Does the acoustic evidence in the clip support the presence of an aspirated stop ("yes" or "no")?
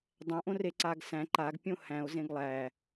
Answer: no